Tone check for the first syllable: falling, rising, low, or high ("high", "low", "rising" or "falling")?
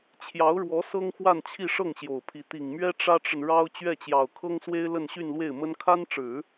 rising